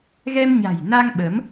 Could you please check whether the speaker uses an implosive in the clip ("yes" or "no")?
yes